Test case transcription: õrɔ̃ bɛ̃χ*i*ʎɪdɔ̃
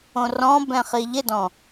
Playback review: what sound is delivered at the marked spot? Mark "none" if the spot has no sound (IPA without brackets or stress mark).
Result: i